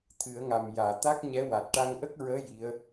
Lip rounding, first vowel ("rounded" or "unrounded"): unrounded